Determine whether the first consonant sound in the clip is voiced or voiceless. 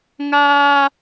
voiced